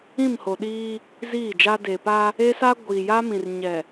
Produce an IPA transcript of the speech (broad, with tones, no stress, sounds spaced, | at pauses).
ĩ˦˨ m h o˨ ɗ iː˦ | z iː˦˨ d͡ʒ a˦ d e˨ p a˦ | e˦ s a˦ ɡʷ iː˨ j a˦ m ĩ˨ r ɲ ɛ˨